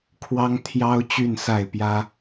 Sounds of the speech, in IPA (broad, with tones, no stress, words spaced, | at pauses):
kʰwɑ˦ŋ t̪ʰjɑ˦ʊ̯ t͡ɕy˥˨nsa˥˨ɪ̯ pjä˦